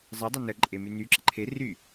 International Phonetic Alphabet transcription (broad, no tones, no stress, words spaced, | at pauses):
zˤə dˤənə ǃʼemyny ǁəǃʰe ry